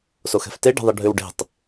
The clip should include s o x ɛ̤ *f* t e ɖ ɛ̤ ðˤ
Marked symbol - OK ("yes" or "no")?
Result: yes